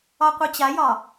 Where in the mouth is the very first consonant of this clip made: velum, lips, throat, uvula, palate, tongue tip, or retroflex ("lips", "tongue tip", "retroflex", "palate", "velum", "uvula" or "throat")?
uvula